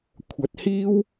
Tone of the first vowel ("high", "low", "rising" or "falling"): rising